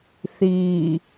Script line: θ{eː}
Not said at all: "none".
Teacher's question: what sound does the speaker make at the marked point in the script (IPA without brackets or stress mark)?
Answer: iː